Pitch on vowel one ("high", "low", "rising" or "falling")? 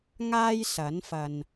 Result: high